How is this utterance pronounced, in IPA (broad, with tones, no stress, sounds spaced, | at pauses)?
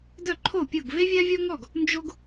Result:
d œ˥˩ ǃʰ o˥˩ pʲ o˥˩ ɡ v e˥ vʲ a˥ vʲ ɔ˥ ŋ ɔ˥˩ ɡ | n d͡ʒ o˥ ɡ